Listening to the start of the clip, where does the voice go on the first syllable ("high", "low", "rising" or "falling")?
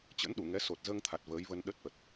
rising